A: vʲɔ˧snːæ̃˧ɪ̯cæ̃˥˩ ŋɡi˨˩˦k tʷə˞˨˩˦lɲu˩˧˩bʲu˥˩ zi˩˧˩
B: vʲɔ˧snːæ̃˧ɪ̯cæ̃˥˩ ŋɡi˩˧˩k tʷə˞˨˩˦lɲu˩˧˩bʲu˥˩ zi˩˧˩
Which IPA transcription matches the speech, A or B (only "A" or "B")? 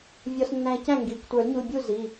B